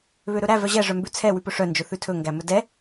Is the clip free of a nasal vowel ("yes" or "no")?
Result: yes